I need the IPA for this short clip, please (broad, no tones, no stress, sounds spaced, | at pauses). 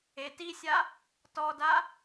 e t i sʲ a | t ɔ d a